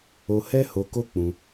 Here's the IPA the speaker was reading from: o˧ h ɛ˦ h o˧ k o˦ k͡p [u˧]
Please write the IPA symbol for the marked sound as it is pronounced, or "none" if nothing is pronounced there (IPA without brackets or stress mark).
ũ˧